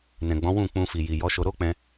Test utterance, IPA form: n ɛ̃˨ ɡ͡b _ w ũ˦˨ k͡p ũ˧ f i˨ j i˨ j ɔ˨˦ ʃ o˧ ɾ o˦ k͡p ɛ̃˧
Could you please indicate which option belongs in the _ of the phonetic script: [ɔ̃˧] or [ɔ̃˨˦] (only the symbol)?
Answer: ɔ̃˨˦